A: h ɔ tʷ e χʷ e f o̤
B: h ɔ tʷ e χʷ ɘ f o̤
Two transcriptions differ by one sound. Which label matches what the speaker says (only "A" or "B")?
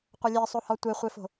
A